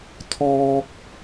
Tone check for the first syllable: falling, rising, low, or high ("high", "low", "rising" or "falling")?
high